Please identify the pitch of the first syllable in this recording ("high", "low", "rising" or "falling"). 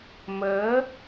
rising